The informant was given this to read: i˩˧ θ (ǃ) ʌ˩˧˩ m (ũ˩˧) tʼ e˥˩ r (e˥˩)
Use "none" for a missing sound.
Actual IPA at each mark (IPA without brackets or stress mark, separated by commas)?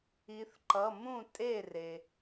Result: ǃ, ũ˥˩, e˩